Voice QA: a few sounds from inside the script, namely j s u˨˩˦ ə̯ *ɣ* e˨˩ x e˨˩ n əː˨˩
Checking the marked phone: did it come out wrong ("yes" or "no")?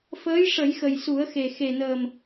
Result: yes